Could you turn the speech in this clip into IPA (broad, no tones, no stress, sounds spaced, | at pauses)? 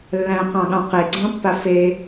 lː æ̃ q ɑ̃ ɠ ɑ̃ q e ɡ͡ǀ ɑ̃ pː a f e